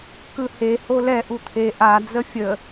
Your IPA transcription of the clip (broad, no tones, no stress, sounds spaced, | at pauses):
k ɯ h e h o l ɛ ʔ u t̪ʰ e ʔ a d͡z ə fʲ ə